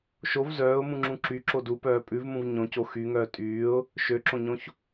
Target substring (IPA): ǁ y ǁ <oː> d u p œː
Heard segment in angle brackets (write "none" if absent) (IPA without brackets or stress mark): o